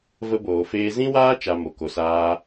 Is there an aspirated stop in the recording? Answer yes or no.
no